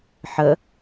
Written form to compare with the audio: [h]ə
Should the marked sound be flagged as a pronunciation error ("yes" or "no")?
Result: yes